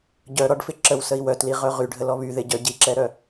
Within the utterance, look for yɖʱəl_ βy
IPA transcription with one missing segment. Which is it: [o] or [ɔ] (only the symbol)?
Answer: ɔ